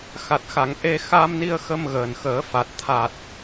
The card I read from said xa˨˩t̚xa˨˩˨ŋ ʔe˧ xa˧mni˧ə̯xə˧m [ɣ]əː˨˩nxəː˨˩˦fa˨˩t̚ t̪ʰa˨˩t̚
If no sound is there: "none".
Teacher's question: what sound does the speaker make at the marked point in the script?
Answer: ɣ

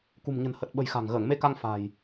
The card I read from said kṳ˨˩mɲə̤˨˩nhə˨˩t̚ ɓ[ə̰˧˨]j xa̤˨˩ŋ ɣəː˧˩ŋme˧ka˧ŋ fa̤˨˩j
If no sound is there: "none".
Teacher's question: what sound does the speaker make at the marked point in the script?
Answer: ə̤˨˩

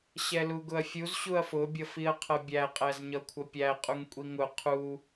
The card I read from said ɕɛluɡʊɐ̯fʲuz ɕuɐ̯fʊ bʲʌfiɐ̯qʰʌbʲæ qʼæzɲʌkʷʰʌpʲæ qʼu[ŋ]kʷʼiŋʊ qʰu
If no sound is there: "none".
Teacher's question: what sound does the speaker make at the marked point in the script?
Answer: ŋ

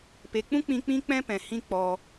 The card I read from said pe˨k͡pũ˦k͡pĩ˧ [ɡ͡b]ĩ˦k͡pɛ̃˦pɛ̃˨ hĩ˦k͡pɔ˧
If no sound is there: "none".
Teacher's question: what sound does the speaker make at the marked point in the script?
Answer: k͡p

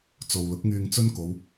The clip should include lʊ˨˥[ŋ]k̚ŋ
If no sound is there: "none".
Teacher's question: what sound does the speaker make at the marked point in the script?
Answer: none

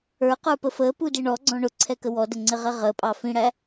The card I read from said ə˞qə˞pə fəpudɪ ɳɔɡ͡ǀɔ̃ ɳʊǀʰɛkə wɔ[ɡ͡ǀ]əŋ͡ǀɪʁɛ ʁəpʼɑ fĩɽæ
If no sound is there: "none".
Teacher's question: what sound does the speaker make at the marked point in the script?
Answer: d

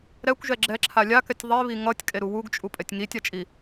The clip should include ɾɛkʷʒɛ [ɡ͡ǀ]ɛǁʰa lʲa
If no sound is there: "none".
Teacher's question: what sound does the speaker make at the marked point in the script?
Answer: ɡ͡ǁ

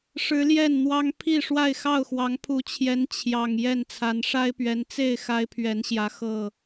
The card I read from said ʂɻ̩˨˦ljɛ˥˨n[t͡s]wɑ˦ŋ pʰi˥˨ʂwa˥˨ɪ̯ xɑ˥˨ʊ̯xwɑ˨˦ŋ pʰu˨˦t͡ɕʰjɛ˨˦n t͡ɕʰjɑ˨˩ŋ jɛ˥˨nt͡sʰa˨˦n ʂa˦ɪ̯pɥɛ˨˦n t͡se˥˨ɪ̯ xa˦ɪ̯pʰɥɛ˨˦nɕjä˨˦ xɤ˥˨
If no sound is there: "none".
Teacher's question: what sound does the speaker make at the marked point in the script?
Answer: n̪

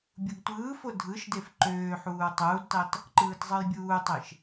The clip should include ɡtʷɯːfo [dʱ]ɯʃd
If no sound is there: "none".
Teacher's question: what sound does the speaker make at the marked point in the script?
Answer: dʱ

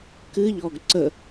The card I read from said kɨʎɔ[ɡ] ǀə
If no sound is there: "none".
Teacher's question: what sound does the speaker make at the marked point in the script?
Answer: ɡ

